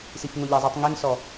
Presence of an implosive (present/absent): absent